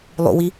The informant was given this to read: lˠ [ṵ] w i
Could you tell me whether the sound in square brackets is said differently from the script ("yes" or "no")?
no